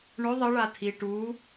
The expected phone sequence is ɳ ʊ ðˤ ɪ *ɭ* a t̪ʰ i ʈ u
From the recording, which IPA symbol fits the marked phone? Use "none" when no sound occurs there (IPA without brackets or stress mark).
ɭ